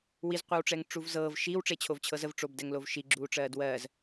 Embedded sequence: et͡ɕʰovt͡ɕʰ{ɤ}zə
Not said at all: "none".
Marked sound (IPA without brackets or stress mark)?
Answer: ɤ